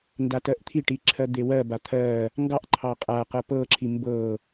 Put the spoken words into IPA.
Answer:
n d a t ɜ ʔ t̪ʰ i ʈ i ǁʰ ɜ d̪ e w ɜ b a t̪ʰ ɜ | ŋ ɡ ɑ ʔ ǃʰ ɑ qʼ a q ɤ p ɤ ǁʰ i m b ɤ

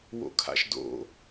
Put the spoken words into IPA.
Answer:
w o̰ kʰ a̰ ʃ d o̰

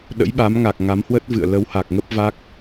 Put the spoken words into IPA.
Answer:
ɗ ə̰˧˥ j ɓ a˨˦ m ŋ a˨˩ k̚ ŋ a˨˦ m h w ə˦˥ t̚ v ɨ̰˧˨ ə̯ l ə˨˦ w h a˨˩ k̚ ŋ ə˦˥ p̚ v a˦˥ k̚

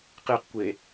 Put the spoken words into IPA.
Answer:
q e q kʷ e

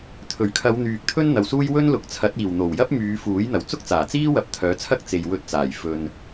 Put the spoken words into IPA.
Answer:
t̪ʰ ɵ˨˩ ɥ kʰ ɐ˨˧ w n̪ yː˨ k̚ t̪ʰ ɵ˥ n n̪ ɐ˨ w s uː˥ j w ɵ˥ n l ʊ˨ k̚ t͡sʰ ɐ˨˥ t̚ iː˨˩ w n̪ o˨˩ w j ɐ˥ p̚ m yː˨˧ f uː˨˥ j n̪ ɐ˨˩ w t͡s ʊ˥ k̚ t͡s aː˨˩ t͡s iː˥ w ɐ˧ p̚ t̪ʰ œː˨˥ t͡sʰ ɐ˥ k̚ t͡s e˨ j w ɵ˧ t̚ t͡s aː˨˩ j f ɵ˨ n

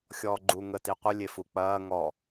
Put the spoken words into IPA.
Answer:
xʲ ɔː ɡ͡ǃ u ŋ ə t i qʷ ə lʲ e f u k͡p ɐː ŋ ɔ

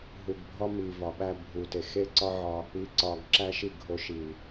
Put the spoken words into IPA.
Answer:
ɦ u˨ ɡ bʱ ɒ˦ m i˨ v ɒ˨ ɓ æ˧ bʱ u˨ t e˨ x e˦ ǀ ɒ˦ ʕ ɒ˧ | i˧ ǀ ɒ˧ ɡ ǁ æ˦ ʃ i˦˨ ɡʱ o˧ ʃ i˨

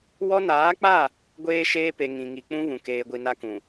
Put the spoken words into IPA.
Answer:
w ɔ˦ n aː˨˦ k͡p a˦˨ | ɡʷ eː˦ ʃ eː˦ p e˨ ŋ ĩ˨ ŋ i˨ k͡p ũ˦ β ũ˨ k eː˨ ɡʷ i˨ n a˦ k ũ˨

